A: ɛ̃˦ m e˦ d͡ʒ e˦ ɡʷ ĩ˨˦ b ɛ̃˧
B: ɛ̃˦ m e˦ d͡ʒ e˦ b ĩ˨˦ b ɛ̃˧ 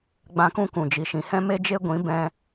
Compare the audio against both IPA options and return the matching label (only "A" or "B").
A